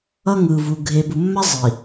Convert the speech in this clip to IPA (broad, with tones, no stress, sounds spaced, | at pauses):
ʌ˦ ŋ ɯ˨ v u˨ ɡʱ e˨ b u˨ mː a˦ zˤ i˨